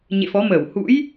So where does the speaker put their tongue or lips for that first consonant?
palate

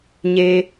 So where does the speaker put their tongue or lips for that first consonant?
palate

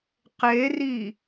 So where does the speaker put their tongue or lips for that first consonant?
uvula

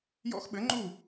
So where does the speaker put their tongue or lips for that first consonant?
palate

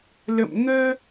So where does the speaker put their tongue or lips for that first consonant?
tongue tip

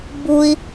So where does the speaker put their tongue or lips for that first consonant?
lips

